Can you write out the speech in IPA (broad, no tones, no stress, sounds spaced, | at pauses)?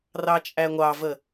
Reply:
r ɑ t͡ʃʼ æ ŋʷ ɑ v ə